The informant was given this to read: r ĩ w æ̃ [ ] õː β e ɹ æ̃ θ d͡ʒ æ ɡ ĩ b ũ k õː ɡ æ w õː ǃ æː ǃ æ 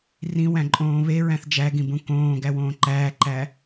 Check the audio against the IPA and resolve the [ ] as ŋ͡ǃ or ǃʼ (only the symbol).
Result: ǃʼ